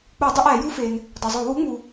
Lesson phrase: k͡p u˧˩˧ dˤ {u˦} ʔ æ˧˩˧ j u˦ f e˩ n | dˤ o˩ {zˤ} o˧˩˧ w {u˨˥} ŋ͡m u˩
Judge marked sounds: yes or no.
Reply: no, yes, yes

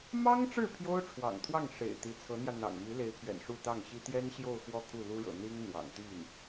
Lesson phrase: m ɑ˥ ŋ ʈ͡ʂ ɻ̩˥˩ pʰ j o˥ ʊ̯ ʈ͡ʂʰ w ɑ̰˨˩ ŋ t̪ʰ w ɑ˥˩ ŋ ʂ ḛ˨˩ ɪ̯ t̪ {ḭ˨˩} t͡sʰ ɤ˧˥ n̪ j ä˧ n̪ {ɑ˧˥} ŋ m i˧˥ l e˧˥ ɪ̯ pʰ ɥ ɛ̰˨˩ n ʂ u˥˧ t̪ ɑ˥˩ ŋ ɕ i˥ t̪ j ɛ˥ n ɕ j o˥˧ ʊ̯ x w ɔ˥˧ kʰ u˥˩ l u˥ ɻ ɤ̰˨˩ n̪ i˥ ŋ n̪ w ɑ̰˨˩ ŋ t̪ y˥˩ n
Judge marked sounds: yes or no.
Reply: no, no

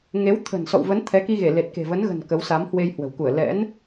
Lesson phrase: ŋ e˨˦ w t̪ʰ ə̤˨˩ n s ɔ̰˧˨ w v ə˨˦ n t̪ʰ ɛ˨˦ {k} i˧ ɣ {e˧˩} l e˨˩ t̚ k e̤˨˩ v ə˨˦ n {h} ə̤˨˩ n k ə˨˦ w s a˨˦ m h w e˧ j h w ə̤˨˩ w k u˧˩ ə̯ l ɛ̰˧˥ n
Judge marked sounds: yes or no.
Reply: yes, yes, no

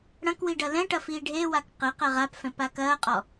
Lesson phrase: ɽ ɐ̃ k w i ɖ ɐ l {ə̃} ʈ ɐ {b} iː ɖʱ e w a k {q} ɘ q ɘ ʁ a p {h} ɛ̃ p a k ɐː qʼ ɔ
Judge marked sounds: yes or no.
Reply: no, no, yes, no

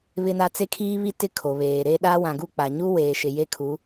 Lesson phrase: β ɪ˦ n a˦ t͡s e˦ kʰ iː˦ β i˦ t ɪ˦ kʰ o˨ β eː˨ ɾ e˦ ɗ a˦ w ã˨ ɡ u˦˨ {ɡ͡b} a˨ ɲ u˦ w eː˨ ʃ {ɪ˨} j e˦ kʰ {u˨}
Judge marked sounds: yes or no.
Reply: no, yes, no

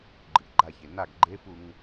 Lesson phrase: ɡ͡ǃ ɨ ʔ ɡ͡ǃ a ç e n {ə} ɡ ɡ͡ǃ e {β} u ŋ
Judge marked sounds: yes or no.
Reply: no, no

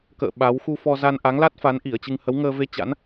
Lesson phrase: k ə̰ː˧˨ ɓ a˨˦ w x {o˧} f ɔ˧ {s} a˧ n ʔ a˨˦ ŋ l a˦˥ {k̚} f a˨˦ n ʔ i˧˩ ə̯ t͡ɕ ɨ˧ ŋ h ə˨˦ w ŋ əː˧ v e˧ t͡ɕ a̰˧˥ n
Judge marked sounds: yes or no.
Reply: no, no, no

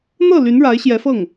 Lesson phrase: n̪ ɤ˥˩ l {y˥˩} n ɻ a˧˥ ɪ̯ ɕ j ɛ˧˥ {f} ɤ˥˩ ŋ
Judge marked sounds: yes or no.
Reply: no, yes

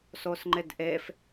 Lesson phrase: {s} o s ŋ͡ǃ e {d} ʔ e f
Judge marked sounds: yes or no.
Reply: yes, yes

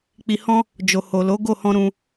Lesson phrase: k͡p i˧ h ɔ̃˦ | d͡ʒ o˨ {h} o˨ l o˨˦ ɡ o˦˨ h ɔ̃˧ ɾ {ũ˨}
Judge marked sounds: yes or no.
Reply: yes, no

